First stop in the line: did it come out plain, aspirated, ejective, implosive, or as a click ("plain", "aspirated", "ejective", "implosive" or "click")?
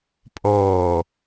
ejective